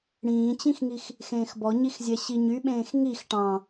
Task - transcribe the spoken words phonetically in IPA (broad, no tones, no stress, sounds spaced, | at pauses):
ɽ ĩː t͡ɕ ĩ x ŋ i x | x ẽː x b ɔ ɲ i x zʲ ɛ ɕ i ɲ y ɓ ẽː x ŋ i x ʈ ɑ̃